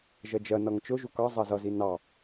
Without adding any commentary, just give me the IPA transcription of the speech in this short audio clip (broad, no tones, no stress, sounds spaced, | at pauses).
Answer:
ʒ ɜ d͡ʒ ɜ n ʌ ŋ t͡ʃ ʊ ʒ u k ɑ zˤ ɜ z ʌ z i n ɑ